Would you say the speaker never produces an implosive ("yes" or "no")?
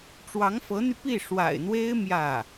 yes